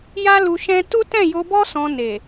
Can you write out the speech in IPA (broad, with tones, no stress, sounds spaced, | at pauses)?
j a˦ l u˧ ʃ ɛ̃˦ t u˦ t ɛ̃˦˨ j o˧ b ɔ˦ s ɔ̃˧ n e˨